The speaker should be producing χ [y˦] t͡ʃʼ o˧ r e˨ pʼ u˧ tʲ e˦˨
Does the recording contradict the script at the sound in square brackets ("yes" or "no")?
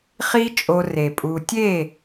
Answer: yes